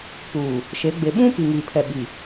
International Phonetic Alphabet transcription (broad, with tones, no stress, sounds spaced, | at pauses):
p uː˨ | ʃ e˨˦ ɡ͡b e˨ ɓ ũ˦ p i˨ ŋ iː˨ pʰ ɛ˨ ɓ i˨